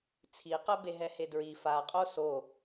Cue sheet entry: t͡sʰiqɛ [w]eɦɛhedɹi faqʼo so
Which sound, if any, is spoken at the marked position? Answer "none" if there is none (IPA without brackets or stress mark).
b